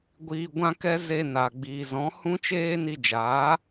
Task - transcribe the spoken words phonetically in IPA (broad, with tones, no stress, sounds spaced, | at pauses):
ɡʷ iː˧ ɡʷ ã˦ k ɛ˦ z e˧ n a˨ ɡ͡b iː˨ z ɔ̃˨˦ h ũ˦ t͡ʃ eː˦ n i˧ d͡ʒ aː˨˦